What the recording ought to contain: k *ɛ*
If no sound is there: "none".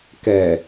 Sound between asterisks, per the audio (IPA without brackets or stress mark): ɛ